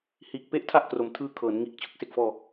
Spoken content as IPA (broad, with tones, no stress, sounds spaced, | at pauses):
h iː˨˩ k̚ p e˦˥ ʔ tʰ a˦˥ ʔ k r o˨˩ m tʰ ɯː˧ kʰ ɤː˩˦ n ŋ iː˨˩ k̚ t͡ɕʰ ɯ˦˥ k̚ s e˨˩ k̚ f ɔː˧